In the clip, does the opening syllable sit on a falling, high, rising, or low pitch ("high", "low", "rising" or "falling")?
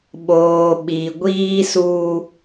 low